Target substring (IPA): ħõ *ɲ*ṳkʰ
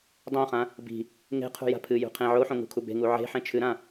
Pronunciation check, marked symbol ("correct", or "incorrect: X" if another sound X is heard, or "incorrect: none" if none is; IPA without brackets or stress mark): incorrect: ŋ